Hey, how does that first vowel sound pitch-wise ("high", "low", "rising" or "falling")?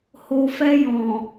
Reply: low